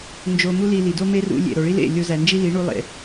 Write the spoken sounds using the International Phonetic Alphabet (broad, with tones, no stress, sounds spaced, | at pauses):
n d͡ʒ o˧ m u˦ l i˧ l i˨ d o˦ m e˦ r ṵ˧ lʲ ḛ˨ ɾ o˨ ɭ i˦ l ḛ˦˨ lʲ o˧ z æ˨ n d͡ʒ i˦ l i˨˦ ɳ u˧ lˠ ḛ˨